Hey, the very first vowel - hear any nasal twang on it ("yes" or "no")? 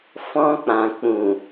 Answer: yes